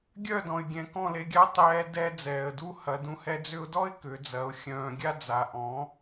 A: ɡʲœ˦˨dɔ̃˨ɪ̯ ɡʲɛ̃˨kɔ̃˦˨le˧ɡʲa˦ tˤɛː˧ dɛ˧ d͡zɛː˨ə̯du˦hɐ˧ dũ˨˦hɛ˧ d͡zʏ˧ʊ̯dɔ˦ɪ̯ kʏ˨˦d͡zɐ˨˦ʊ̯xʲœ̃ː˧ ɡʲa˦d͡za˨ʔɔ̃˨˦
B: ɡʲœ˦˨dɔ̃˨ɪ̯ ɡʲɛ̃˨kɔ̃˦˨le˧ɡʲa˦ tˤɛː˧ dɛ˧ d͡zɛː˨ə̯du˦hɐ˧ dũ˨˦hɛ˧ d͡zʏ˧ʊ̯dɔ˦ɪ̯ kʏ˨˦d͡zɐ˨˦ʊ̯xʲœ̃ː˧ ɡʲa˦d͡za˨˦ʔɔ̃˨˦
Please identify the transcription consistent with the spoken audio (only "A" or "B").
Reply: B